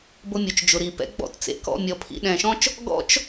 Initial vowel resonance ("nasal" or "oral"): oral